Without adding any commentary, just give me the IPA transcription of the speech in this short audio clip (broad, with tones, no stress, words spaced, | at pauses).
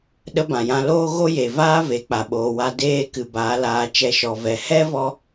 ɗə˦ bã˨jã˧loː˦ ɣo˦je˨vaː˦ ve˨˦k͡pa˨ɓoː˨ wa˧ deː˦ kɨ˨baː˨˦laː˧ t͡ʃɛ˧ʃɔ˨ vɛ˨ hɛ˦vɔ˧